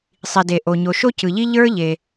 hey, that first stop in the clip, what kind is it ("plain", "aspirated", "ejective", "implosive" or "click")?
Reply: plain